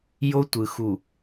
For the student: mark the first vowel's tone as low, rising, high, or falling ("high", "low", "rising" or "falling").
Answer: high